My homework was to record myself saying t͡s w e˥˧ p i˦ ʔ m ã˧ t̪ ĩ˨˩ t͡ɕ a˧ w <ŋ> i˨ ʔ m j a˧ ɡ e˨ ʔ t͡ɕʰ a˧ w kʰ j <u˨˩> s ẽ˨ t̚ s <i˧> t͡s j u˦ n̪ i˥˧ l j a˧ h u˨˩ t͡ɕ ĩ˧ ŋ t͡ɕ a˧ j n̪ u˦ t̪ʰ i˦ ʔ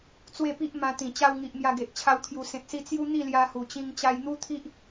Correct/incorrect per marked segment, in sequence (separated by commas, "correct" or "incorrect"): correct, correct, correct